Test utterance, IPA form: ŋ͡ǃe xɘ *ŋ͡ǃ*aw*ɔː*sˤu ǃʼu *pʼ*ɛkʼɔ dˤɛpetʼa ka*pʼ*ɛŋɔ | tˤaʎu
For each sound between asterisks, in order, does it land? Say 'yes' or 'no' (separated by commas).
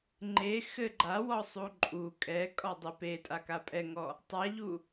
no, no, no, yes